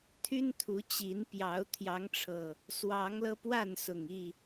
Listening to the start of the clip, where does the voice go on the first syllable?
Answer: high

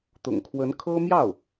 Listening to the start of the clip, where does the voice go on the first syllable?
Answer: low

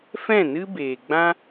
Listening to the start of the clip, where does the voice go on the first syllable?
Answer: falling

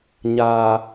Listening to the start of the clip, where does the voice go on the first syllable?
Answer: low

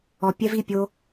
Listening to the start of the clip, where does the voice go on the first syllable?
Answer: low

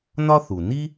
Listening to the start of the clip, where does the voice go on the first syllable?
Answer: high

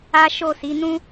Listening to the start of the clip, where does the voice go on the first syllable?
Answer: high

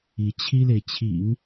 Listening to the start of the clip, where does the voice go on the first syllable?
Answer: rising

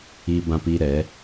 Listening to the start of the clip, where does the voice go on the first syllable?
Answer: high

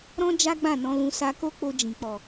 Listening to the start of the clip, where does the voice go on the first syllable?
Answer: high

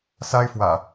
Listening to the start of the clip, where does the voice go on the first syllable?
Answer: high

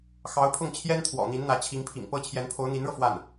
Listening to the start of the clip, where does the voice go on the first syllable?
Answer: rising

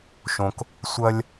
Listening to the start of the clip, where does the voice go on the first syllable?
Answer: low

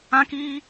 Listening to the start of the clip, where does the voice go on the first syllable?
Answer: high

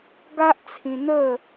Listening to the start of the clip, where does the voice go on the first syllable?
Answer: high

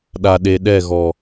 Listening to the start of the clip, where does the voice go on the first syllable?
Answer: low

